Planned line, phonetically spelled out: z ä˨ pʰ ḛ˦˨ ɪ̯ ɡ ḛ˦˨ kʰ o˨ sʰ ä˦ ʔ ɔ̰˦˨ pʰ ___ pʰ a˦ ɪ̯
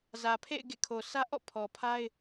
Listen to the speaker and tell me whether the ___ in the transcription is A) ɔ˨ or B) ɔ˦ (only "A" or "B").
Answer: A